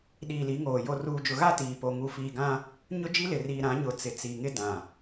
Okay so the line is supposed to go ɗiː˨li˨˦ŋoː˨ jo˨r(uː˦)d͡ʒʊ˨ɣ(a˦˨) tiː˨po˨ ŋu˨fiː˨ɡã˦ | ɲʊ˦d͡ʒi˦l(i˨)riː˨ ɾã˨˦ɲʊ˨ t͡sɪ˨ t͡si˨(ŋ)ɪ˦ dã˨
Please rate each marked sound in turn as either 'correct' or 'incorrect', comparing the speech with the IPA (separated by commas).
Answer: incorrect, correct, incorrect, correct